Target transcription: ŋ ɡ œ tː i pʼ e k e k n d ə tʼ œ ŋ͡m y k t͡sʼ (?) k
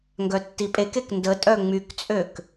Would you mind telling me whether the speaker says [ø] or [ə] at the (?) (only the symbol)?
ø